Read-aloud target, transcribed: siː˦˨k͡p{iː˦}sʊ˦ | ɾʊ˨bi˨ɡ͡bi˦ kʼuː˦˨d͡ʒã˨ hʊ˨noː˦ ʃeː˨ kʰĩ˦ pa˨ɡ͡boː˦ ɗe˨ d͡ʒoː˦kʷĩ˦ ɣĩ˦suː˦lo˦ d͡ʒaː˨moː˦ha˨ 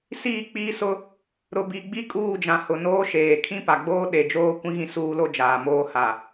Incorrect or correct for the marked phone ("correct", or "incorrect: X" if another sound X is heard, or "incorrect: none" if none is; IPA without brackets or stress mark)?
correct